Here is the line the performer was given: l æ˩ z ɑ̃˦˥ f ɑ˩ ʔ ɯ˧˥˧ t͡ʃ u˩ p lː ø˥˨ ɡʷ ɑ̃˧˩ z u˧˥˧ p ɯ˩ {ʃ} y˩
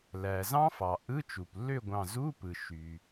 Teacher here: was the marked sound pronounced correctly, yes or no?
yes